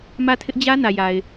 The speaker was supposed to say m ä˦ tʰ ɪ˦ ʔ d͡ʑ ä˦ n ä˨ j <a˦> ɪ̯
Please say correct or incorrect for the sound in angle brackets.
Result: incorrect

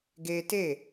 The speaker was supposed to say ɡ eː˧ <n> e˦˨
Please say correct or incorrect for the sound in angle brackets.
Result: incorrect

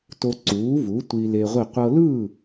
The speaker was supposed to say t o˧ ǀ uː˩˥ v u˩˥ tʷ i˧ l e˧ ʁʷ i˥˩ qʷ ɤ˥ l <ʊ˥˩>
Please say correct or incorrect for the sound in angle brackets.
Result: incorrect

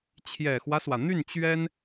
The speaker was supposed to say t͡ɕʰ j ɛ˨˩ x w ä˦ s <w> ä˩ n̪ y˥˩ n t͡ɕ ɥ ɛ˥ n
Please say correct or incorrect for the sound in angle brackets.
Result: correct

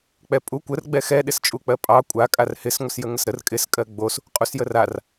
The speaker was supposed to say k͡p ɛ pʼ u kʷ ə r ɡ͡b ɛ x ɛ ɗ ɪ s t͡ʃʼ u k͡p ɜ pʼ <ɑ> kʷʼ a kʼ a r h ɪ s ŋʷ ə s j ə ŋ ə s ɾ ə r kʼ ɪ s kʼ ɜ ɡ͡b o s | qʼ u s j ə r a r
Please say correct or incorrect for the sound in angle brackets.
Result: correct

